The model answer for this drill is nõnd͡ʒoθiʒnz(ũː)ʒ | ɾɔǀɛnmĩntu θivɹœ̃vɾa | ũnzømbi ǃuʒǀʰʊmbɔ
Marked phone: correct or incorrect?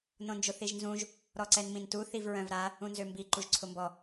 incorrect